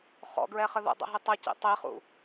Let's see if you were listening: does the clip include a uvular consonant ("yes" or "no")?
yes